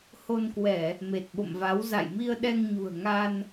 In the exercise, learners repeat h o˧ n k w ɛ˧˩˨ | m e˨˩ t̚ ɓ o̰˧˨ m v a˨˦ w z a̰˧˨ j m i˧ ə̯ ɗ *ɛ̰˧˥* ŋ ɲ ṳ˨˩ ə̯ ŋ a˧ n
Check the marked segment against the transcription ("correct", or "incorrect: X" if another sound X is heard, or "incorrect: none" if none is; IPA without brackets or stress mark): incorrect: ɛ˧